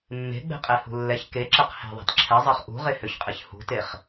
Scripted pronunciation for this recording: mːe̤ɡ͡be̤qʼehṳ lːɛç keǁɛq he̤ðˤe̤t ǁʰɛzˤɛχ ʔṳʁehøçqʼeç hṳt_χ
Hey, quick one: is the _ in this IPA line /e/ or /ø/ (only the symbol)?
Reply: e